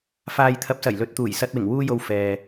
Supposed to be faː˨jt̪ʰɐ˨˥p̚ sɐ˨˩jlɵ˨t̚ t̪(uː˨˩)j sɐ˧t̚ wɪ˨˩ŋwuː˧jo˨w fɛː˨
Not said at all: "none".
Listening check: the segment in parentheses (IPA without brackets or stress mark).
uː˨˩